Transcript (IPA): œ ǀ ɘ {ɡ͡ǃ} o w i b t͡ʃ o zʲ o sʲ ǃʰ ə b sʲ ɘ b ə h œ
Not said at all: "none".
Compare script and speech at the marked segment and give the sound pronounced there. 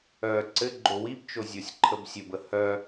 ɡ͡ǃ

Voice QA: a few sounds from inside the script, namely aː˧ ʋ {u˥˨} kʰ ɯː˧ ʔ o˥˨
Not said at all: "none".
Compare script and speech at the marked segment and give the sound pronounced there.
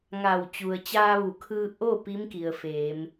u˩˧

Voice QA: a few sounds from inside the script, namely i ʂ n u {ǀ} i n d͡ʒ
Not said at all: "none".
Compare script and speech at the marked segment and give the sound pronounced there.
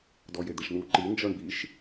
ǃ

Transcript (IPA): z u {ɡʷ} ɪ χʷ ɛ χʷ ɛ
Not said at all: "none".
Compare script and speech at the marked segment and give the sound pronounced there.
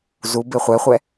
b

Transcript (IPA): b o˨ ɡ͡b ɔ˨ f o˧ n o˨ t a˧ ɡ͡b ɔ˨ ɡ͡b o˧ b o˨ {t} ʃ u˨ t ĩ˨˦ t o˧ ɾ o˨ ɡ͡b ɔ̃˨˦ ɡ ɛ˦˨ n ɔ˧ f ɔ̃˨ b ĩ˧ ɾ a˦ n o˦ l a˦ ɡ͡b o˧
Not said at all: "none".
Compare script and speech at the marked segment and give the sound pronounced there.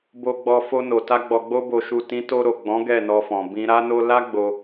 none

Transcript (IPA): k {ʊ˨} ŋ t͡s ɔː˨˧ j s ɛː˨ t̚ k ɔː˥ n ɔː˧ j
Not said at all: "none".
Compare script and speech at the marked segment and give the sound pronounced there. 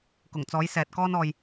ʊ˨˩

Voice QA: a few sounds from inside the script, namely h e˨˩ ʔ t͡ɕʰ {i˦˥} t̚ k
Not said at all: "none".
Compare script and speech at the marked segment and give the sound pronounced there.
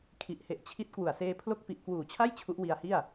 i˦˥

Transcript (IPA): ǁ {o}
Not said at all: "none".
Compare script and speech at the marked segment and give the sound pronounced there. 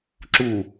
u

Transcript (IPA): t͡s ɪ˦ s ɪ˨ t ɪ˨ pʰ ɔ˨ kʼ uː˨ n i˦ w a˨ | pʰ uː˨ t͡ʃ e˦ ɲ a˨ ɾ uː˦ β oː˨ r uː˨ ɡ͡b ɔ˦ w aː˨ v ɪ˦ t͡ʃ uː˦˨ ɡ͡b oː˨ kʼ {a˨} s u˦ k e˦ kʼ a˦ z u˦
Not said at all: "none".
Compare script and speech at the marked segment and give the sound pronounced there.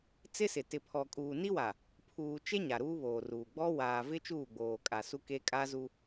a˨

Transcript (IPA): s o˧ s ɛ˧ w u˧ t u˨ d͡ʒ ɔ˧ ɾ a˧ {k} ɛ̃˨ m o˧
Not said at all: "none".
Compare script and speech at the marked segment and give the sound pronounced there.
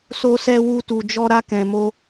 k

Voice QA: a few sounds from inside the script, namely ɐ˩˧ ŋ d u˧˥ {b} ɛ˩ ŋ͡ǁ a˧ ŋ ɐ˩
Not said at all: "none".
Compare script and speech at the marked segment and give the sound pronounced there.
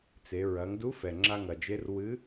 f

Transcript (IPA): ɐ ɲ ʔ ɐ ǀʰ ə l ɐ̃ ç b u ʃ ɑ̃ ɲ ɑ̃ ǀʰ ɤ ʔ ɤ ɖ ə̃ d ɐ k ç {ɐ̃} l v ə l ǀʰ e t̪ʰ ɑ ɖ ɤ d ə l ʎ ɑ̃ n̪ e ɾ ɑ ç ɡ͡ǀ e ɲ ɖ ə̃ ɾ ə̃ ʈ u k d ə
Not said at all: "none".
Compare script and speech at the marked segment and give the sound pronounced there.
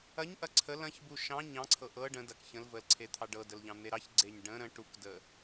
ə̃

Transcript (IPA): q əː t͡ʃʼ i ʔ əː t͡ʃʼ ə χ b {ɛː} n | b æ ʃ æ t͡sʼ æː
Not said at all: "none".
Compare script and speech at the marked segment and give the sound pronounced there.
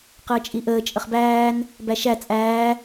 æː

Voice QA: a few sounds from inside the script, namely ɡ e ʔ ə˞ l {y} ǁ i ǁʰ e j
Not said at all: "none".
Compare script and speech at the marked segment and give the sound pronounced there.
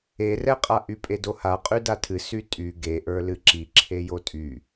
ɨ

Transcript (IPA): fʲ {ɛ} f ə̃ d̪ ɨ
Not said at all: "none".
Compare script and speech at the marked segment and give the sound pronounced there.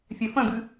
ɛ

